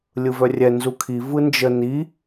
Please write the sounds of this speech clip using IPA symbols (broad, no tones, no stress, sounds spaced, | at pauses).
lʲ ɯ v œ rʲ ɛ n z u kʰ i v ɯ n d͡ʒ ə n i